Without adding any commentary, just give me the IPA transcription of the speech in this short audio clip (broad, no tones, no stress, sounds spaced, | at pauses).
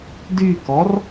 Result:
d y k ɔ r